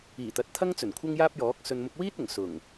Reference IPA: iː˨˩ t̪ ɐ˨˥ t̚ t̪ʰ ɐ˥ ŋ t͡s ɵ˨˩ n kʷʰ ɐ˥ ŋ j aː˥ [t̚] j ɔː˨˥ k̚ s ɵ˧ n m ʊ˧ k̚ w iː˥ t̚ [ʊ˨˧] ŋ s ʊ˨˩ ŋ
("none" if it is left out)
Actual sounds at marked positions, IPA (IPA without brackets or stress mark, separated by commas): p̚, ʊ˨˩